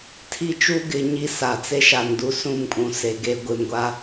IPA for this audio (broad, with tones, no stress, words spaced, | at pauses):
tʰi˦t͡ʃu˦ ɡɪ˦ ɲi˦sa˨t͡se˦ ʃa˨ndu˦sũ˦˨mkʼũ˨ se˨ɡe˦ ɡʷɪ˨mɡʷa˦